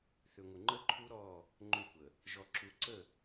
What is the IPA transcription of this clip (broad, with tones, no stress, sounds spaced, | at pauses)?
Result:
θ ʏ˨ ŋʷ ə˨ ŋ͡ǃ ə˦ ǃʰ u˦ ɾ ɔ˦˨ | ŋ͡ǃ ʏ˦˨ kʷ ə˨ | ʒ ɔ˨ ǁ u˨ ǀ ə˦˨